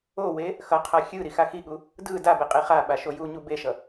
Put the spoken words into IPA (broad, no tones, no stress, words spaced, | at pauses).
owe | xʌqʰa xʲɯ ɾixaxiɠu | dɯ dabe qʼiχaɓa ʃojuɲu beʃʌ